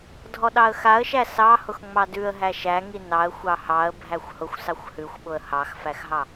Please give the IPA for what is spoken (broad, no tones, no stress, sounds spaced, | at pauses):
dʱ ɔ ɗ ɑ ə̯ x a ə̯ ʃ æ s ɑ h ʊ x ŋ͡m ɑ d ʉ ə̯ ɦ æ ʃ æ ŋ i n ɑ ə̯ xʷ ɑ h ɑ ə̯ bʱ æ xʷ h ʊ xʷ s ɑ xʷ h ʉ xʷ ɓ ʊ ə̯ h ɑ x f æ x ɦ ɑ